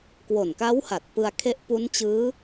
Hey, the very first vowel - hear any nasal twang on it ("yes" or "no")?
no